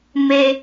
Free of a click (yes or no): yes